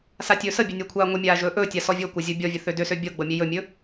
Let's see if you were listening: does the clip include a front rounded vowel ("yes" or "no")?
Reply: yes